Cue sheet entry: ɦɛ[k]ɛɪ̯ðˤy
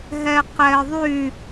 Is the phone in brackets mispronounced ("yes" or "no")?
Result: yes